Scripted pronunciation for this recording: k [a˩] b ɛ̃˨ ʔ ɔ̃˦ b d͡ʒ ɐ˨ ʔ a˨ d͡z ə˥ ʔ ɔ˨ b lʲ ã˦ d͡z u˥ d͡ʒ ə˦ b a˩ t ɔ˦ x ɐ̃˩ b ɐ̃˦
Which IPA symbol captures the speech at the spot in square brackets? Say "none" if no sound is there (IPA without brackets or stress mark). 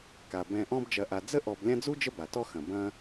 a˩